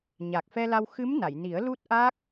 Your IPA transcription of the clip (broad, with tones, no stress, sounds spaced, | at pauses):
ɲ a˨˩ k̚ f ɛ˧ l a˧ w x ɨ˧˥ m n a˨˩˨ j n i˨˩˦ ə̯ l u˦˥ t̚ ʔ a˦˥ k̚